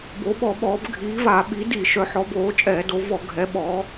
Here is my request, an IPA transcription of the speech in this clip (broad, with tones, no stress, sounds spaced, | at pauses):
b o˩˧ ɓ ɔ˧˩˧ ɓ ɔː˩˧ b ɡʱ iː˩˧ v a˧˩˧ ɓ i˩˧ d i˧˩˧ ʃ œ˩˧ ħ ɔ˩˧ b oː˩˧ t͡ʃʼ ɛː˧˩˧ d o˩˧ v ɔ˧˩˧ ɡʱ ɛ˩˧ ɓ ɔː˩˧